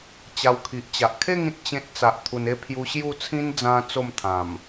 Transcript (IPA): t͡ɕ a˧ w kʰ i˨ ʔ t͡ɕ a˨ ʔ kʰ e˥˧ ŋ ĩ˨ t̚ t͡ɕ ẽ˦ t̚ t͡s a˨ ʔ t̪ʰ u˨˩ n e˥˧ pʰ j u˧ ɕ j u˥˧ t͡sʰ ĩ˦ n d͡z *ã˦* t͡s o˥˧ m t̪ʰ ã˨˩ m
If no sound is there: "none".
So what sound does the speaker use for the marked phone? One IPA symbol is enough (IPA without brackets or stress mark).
ã˦